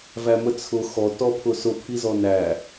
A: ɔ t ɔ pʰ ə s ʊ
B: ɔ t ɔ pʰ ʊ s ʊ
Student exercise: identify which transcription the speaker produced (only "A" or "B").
B